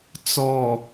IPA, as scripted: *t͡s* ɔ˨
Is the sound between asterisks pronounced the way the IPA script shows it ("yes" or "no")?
yes